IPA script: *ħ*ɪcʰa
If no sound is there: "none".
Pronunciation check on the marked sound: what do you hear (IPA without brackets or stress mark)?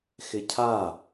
x